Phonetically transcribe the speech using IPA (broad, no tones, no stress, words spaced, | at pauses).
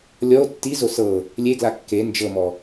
lʲɔo̯ tːizo sɤ | lʲeɡla kːe nd͡ʒɤmɔ